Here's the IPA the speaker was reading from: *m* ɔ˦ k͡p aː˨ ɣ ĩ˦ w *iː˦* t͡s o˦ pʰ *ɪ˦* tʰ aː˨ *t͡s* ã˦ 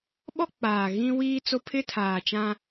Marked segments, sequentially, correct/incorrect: incorrect: ɓ, correct, correct, incorrect: t͡ʃ

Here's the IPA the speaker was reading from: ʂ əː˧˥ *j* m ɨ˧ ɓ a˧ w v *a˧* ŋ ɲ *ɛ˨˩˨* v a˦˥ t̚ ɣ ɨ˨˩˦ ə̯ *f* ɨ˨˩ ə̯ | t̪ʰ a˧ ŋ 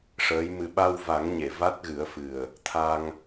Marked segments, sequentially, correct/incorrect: correct, incorrect: a˨˩˦, incorrect: e˨˩˨, correct

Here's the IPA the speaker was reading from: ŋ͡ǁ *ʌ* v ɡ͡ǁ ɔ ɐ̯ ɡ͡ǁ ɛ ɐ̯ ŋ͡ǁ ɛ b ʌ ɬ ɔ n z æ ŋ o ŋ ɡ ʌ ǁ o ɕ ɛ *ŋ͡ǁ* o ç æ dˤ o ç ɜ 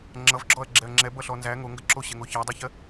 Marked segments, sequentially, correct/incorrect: correct, incorrect: ŋ

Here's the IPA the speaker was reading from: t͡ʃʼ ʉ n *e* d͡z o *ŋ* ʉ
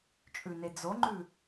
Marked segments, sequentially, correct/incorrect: correct, incorrect: ŋ͡ǃ

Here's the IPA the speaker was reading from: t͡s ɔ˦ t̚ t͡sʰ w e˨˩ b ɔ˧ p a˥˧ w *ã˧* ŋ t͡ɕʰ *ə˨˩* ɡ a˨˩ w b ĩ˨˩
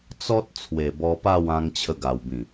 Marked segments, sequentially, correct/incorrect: correct, incorrect: ə˧

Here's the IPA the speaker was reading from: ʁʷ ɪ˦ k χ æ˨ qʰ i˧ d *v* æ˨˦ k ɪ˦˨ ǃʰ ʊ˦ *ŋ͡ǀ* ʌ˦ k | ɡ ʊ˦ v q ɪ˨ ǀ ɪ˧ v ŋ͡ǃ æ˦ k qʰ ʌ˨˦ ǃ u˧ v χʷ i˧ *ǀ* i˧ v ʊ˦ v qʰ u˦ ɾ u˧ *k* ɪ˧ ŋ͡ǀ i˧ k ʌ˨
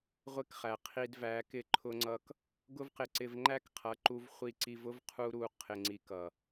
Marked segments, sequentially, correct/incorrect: correct, correct, correct, incorrect: qʰ

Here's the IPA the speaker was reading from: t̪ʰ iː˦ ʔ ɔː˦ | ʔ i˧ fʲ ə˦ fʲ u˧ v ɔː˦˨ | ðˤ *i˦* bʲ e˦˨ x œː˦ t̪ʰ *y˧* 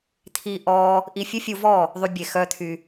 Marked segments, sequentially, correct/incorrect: incorrect: y˦, correct

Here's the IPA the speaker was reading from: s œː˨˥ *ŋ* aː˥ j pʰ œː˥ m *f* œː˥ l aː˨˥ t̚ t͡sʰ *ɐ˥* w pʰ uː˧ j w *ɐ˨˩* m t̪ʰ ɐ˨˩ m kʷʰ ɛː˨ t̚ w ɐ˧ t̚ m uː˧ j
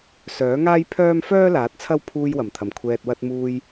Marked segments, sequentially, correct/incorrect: correct, correct, correct, correct

